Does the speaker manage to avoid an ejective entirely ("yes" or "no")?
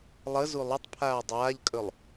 no